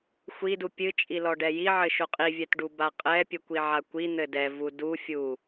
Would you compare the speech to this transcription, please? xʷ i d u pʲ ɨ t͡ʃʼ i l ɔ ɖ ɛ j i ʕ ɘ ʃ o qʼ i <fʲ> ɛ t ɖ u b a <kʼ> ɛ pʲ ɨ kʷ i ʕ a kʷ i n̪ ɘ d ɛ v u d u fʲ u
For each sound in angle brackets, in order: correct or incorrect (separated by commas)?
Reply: incorrect, incorrect